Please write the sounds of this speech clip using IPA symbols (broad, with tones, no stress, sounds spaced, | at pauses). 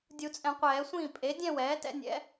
dʲ u˨˩˦ t͡sʼ ɛ̃˨˩˦ qʷ ɛː˨˩˦ sʷ ĩː˥˩ pʼ e˩˥ dʲ ɛ̃˥˧ w ɛː˩˥ t ɛ̰˩˥ nʲ ɛ̰˩˥